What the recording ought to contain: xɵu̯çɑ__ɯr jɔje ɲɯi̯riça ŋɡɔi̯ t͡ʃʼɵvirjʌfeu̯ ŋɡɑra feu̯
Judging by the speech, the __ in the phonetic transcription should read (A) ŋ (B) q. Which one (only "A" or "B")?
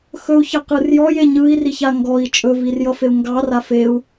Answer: B